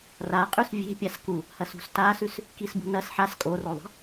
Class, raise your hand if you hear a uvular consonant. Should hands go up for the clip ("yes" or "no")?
yes